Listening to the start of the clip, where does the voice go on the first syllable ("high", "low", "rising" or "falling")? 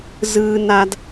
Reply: high